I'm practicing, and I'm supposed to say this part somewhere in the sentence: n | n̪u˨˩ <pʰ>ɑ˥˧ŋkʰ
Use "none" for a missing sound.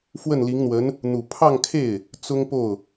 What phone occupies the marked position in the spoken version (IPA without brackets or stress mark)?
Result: pʰ